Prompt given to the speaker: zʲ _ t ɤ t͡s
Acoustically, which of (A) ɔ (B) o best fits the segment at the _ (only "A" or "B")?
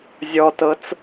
A